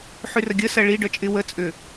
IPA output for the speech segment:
ħ y r ə ɡʲ ə s ɐ ɭ i ɖ œ t͡ʃʼ ɪ w ə t͡sʼ ʏ

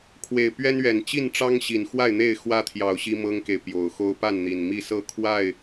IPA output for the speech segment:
kʰ w e˨˩ ɪ̯ p ɥ ɛ˦ n ɥ ɛ˨˩ n t͡ɕ i˥˨ n ʈ͡ʂ ɑ˦ ŋ ɕ i˨˩ n x w a˥˨ ɪ̯ n̪ e˥˨ ɪ̯ x w ä˦ t̪ʰ j ɑ˨˩ ʊ̯ ɕ i˦ m ɤ˦ ŋ k e˨ ɪ̯ p j o˨˩ ʊ̯ x o˦ ʊ̯ p a˥˨ n n̪ i˨˩ n m i˥˨ s ɤ˥˨ kʰ w a˥˨ ɪ̯

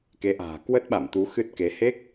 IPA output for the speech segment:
k e˨˦ ʔ a̤ː˨˩ k w ə˦˥ t̚ ɓ a̰˧˨ m t̪ u˨˦ x ɨ˦˥ t̚ k e˨˦ h e˦˥ k̚

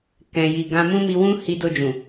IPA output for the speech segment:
k ɛ̃˨ j i˨ ɡ ã˧ m ũ˦ m i˧ w ũ˦ h i˧ d o˧ d͡ʒ ũ˨

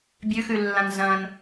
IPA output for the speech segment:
bʲ ʉ x ʉ lː ã n z ɐ̃ n

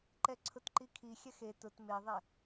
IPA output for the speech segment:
ǃ ɛ ǀʰ ʊ t ǃ i kʰ i xʲ ɛ x e t ʊ t m e ðˤ ɛ

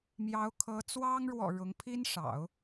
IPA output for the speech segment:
m j ɑ˧˥ ʊ̯ kʰ ɤ˧˥ t͡s w ɑ˥ ŋ ɻ w ɔ̰˨˩ ɻ ʊ˧˥ ŋ pʰ i˥ n ʂ ɑ̰˨˩˦ ʊ̯

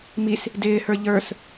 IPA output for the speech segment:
m i s | d ɪː h ə˞ ʎ ə˞ s

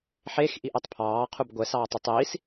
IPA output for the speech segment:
ħ e x ʔ i ʔ ɛ tˤ pʰ ɑː qʰ u b ɡʷ ɛ s ɑː tˤ u tˤ iː s

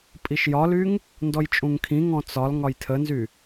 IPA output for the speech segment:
pʼ i ʃ j ɒ l y ŋ | n d ɔ j t͡ʃʼ ũ ŋ kʰ ĩ ŋ ɔ̃ t͡s ɒ l ŋ ɒ j tʰ ə n z y

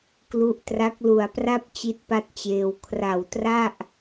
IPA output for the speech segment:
k l u˦˥ ʔ t r a˦˥ k̚ l u˨˩ a̯ p r a˥˩ p̚ t͡ɕ i˥˩ t̚ p a˥˩ t̚ t͡ɕ eː˧ w kʰ r a˨˩ w t r a˥˩ ʔ

